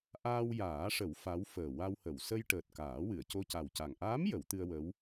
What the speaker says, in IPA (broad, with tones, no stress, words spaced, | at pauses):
ʔaː˧wjaː˨˩˦ʂə˨˩˦w fa˧˥wfəː˨˩ wa˧whə˨˩˨w sə˧jʈəː˨˩t̚ kaː˨˩˦wɨ˨˩˨ə̯ co˧ca˨˩wca˨˩ŋ ʔaː˧˥m jə˨˩˦wt̪ɨ˧ə̯wə˧˥w